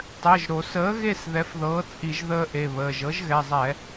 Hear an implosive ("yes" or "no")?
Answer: no